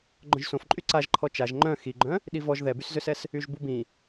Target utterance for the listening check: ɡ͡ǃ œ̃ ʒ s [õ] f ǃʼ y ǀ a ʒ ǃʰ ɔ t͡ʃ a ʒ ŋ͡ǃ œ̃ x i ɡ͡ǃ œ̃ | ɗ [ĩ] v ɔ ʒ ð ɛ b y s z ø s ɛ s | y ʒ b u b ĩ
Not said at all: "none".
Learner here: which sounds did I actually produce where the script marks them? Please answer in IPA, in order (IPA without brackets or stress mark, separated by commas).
õ, i